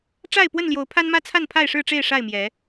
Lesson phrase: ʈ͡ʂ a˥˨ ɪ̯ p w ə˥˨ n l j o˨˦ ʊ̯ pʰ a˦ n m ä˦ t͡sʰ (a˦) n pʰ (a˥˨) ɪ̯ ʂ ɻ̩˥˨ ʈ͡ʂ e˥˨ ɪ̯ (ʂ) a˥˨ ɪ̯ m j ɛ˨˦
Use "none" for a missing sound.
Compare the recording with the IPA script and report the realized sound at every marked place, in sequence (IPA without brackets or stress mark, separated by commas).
a˥˨, a˥˨, ʂ